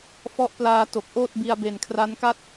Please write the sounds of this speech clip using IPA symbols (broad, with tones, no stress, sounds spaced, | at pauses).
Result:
f ɔ˦˥ ʔ p l aː˧ t o˨˩ k̚ ʔ oː˥˩ t̚ b i˧ a̯ b e˨˩ n kʰ r a˦˥ n k a˥˩ t̚